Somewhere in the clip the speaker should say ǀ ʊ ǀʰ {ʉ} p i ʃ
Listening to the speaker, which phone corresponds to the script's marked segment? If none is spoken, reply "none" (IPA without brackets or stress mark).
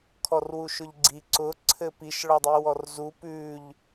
ɘ